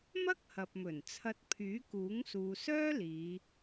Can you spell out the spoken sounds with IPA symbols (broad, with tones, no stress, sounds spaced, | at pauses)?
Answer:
m ɐ˥ k̚ h ɐ˨ p̚ m ɵ˨˩ n t͡sʰ ɐ˧ t̚ pʰ yː˨˥ k uː˨˥ ŋ s uː˨ s œː˥ l iː˨˧